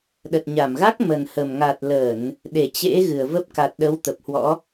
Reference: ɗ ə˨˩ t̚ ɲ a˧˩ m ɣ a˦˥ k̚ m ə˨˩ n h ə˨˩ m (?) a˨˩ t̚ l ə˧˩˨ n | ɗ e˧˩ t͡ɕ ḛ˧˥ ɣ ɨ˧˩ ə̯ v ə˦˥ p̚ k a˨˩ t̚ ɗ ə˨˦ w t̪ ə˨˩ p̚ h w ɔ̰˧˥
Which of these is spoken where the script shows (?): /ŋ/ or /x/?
ŋ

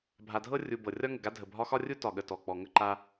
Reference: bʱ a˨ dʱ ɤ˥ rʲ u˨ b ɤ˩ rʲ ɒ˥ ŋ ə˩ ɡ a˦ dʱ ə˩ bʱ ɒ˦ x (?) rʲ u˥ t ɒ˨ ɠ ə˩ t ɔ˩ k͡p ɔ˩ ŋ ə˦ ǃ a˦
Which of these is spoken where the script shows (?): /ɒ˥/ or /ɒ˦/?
ɒ˥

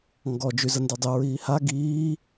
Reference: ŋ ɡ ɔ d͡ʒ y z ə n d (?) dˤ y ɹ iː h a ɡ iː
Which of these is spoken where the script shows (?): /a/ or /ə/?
a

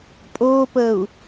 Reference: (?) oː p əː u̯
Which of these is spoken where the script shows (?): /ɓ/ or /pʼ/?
pʼ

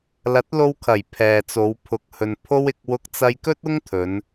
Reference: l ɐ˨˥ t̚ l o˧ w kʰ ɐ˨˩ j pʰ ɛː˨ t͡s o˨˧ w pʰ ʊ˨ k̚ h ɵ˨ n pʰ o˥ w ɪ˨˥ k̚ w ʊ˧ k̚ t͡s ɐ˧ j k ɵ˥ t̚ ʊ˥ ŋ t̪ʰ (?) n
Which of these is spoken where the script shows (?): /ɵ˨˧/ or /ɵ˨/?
ɵ˨˧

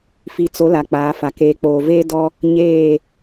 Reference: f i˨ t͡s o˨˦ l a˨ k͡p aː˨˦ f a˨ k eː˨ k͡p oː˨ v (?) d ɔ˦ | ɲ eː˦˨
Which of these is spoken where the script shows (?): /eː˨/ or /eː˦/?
eː˦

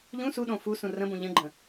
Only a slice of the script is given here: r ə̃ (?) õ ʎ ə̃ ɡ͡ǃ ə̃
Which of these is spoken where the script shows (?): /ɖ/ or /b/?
b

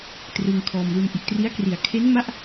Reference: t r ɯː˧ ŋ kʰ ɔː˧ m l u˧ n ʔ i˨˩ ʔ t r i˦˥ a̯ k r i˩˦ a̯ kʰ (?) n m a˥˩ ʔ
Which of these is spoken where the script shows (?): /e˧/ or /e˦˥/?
e˦˥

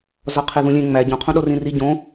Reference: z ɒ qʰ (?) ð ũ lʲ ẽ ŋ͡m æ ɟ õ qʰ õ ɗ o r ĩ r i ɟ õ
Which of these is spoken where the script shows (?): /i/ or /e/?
e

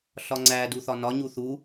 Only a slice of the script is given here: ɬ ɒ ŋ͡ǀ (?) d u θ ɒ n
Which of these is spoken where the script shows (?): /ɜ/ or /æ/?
æ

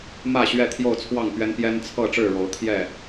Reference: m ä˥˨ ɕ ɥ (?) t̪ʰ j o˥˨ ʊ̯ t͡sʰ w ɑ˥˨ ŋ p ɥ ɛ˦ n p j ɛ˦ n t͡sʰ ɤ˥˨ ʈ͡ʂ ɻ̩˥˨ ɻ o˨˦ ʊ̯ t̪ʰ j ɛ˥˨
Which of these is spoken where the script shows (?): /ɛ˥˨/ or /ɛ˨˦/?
ɛ˥˨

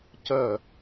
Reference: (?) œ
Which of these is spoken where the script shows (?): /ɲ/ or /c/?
c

